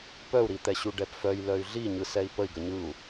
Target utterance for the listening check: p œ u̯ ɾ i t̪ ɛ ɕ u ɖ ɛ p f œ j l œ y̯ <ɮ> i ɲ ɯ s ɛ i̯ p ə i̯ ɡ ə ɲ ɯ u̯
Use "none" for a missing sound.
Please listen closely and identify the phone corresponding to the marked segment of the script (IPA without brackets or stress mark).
ɮ